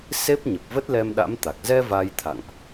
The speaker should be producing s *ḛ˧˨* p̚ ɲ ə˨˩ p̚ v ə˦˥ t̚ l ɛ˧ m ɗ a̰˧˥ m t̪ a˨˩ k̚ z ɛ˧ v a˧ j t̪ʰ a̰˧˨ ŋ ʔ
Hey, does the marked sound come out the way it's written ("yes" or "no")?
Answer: no